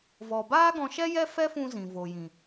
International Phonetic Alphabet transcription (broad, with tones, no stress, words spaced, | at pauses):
vɔ˨baː˦ɡɔ̃˧ʃɛ˦ jɛ˦fɛ˦fũ˧ zĩ˨vo˨jĩ˨